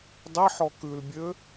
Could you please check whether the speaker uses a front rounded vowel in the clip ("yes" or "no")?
yes